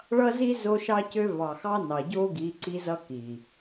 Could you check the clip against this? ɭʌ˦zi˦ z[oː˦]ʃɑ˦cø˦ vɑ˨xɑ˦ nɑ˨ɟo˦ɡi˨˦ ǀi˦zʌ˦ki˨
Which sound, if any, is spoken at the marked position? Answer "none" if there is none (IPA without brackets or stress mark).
o˦